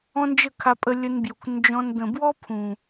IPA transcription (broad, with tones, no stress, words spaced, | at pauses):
ɔ̃˦nd͡ʒə˦˨kʰa˧pʼə˧ lʲə˧nbju˨kʷ nd͡ʒɔ̃˧n d̪ə̃˨bwɔ˦ pʰũ˨